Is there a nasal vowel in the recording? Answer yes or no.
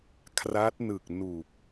no